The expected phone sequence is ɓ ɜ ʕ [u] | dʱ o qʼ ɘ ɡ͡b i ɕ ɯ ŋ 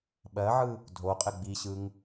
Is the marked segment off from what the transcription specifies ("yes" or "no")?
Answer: yes